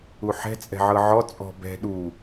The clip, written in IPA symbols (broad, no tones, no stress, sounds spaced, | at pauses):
u ħ ɛ̤ t͡sʼ ɛ̤ ʕ ɤ ʕ ɔ t͡sʼ ɔ̤ b ɛ̤ ɗ u